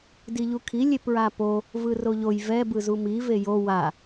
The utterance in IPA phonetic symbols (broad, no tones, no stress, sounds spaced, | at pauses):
d i ʎ u kʰ i lʲ e p ɹ a p o | v ɯ r o ʎ o j v ɛ b ɯ z u m i v e j o w a